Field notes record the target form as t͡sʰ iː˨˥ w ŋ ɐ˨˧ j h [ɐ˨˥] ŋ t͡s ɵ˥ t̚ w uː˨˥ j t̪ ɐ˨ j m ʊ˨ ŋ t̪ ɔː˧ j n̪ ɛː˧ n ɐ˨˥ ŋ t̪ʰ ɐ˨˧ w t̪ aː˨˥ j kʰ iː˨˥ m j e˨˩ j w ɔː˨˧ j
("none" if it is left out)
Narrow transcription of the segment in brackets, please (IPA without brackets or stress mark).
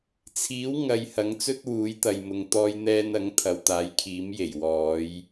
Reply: ɐ˨˥